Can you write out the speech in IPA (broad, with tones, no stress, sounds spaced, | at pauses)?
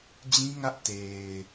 d͡ʑ ĩ˦ ŋ ä˦ ʔ t e˨ ɪ̯